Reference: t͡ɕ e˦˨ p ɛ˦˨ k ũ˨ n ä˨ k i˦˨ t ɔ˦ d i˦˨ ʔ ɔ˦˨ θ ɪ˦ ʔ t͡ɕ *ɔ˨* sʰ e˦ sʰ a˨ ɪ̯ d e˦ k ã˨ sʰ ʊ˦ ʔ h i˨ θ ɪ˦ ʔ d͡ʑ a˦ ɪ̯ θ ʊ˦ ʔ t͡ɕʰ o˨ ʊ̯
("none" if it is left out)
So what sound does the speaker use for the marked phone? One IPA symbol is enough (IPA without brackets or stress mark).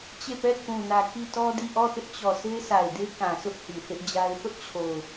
ɔ˨